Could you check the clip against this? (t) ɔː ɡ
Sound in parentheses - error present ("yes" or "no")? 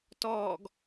no